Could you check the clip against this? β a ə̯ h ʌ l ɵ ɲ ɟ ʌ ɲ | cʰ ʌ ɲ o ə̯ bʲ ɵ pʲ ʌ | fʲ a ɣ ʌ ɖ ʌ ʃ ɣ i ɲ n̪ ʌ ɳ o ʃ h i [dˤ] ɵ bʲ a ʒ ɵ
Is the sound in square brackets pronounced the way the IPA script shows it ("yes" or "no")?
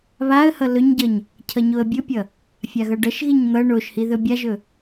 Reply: no